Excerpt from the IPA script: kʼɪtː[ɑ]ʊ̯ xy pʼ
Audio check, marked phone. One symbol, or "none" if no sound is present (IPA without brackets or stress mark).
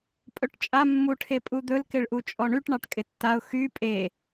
a